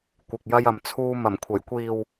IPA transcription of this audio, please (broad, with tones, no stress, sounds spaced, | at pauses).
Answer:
kʷ ɪ˨ k̚ j ɐ˧ j ɐ˨ m t͡sʰ uː˧ m ɐ˨˩ m kʷʰ ɐ˨˩ j kʷ iː˨ w